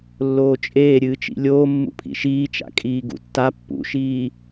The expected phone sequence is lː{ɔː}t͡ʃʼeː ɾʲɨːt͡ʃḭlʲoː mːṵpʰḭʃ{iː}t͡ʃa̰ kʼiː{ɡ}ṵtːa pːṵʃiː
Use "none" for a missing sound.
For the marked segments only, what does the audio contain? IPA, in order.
oː, iː, ɡ

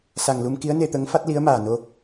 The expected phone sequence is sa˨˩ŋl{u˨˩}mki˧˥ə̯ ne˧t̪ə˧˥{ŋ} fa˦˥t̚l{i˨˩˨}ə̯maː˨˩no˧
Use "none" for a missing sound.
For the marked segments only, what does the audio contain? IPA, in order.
u˧, ŋ, i˧˥

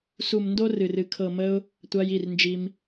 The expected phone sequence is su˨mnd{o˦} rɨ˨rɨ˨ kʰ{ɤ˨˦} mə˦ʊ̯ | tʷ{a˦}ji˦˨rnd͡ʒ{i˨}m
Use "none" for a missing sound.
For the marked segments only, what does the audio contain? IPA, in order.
o˧, ɤ˨, a˦, i˧

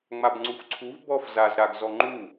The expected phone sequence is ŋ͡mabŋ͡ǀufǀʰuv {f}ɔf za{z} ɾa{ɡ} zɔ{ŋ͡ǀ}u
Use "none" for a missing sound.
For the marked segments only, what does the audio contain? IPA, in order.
b, z, ɡ, ŋ͡ǃ

